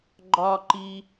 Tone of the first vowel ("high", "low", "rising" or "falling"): high